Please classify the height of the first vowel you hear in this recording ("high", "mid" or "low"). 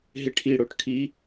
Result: high